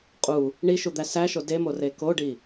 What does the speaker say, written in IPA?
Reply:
qʼu | ɳiʃud̪æ sæʃo demore koɖi

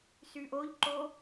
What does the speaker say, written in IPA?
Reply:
syʔoʎǃo

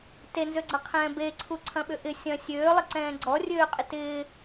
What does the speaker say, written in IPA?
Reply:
tenzøɡ͡ǀɐqʰɛ̃ː beǀʰu ǀʰɐ̃ɓʏʔɪ sʲɐ̃ sʲøː lˠɪǀɛ̃ːɡ͡ǀɔ rʲøːqʼɪtɪː

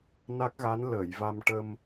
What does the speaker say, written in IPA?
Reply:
na˦˥k̚ɣa˧˥n ləː˨˩˨jva˧m ʈə˧m

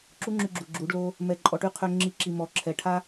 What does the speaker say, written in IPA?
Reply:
ǁu˦ŋ͡ǁy˧ ɡ͡ǁu˨ ɡ͡ǁu˨˦ɖlo˦ | mɛ˧ǃʼɔ˧ʈy˦ qʰø˧ ŋ͡ǁi˧ǁi˨mɔ˨ ǁʰɛ˨ ʈʰa˦

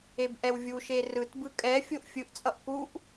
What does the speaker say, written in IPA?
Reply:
ebʔɛwvʲuʃe rɯtbɯ kʼɛfʲoʔ fʲɯʔt͡sʼʌʔ kuʔ

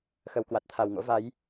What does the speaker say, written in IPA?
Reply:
xə˨˩wkwa˨˩t̚t̪ʰa˨˩w ŋo̰˧˥va˨˦j

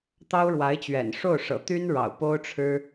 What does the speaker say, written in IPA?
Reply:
t̪ɑ˥ʊ̯ɻwa˧˥ɪ̯t͡ɕɥɛ̰˨˩n ʂo˥˩ʊ̯ʂɤ̰˨˩ t̪y˥nɻɑ̰˨˩ʊ̯ po˥ʊ̯ʈ͡ʂʰɻ̩˥

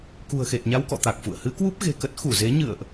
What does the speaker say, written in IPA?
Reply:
kṳ˨˩ə̯xe˨˩t̚ɲa˧wkɔ̰˧˨ t̪a˨˩k̚fṵ˧˨ə̯ hɨ˨˦kwu˦˥p̚ ɣe̤˨˩kə˦˥t̚ xu˧˩ze˨˦ ɲɨ̰˧˨ə̯ʔ

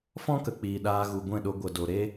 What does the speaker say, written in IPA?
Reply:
fɔ̃˦ kə˧k͡piː˧ ɗaː˧ɣu˨ɡʷɛ̃˦˨ɗo˧ ɡʷə˨ do˧ ɾe˦

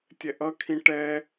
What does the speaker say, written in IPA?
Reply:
tʲɛʔʌkʰĩ ʈɛ

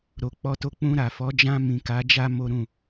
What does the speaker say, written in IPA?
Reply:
ɾo˨k͡pɔ˧to˧ k͡pũ˧ɾa˨fɔ˨˦ d͡ʒã˧mĩ˨ ka˨˦d͡ʒa˦ mo˦ ɾũ˦˨

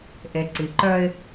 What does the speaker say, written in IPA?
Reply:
ʔe˨ǀi˨ǃœ˦ɪ̯

